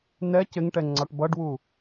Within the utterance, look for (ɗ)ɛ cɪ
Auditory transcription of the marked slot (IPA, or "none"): n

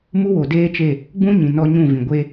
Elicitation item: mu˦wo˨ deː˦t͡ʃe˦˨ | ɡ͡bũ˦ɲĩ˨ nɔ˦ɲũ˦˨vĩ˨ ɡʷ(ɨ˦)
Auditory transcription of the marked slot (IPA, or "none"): e˦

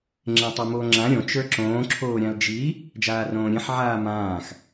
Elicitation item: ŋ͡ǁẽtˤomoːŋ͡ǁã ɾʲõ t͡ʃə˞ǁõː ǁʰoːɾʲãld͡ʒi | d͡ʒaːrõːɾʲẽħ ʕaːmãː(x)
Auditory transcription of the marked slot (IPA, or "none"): x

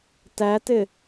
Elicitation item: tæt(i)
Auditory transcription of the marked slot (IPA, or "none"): ɪ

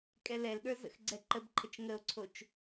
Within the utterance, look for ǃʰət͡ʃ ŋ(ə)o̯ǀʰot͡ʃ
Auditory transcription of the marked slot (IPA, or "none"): ə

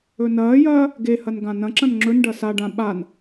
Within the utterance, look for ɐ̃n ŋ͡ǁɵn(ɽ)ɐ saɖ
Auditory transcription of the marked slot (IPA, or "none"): ɖ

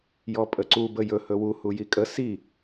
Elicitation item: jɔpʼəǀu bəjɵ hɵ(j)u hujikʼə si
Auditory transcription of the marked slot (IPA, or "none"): w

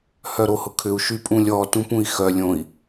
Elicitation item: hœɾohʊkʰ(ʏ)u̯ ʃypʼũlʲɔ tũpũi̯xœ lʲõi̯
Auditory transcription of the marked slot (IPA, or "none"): ʏ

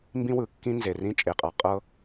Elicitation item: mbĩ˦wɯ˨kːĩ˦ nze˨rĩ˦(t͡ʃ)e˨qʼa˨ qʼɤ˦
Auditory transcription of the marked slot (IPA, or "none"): t͡ʃʼ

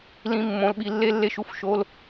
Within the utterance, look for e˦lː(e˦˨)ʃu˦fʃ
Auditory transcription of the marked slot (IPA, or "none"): e˦˨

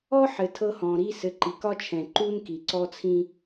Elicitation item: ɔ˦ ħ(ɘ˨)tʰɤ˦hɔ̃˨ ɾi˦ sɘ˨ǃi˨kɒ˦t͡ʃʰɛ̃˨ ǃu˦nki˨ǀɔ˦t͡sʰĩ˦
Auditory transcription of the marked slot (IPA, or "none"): ɘ˨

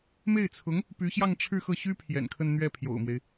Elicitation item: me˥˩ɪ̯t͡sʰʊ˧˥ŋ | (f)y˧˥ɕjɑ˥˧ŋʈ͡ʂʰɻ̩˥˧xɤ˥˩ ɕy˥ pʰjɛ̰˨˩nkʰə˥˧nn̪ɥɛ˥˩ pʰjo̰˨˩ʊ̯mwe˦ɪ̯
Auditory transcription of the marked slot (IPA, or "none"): p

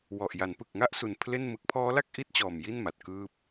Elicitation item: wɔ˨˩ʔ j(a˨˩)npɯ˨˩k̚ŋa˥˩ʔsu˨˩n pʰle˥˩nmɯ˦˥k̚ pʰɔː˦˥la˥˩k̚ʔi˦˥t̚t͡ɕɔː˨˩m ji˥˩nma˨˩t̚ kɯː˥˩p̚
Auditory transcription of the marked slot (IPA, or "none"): a˩˦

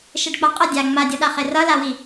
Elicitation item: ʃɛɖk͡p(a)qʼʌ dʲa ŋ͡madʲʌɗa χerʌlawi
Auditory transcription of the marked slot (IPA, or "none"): a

